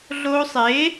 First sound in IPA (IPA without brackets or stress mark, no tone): ɮ